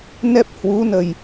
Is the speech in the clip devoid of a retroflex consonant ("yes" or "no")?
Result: yes